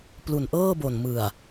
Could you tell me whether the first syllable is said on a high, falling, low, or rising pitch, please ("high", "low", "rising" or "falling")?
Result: low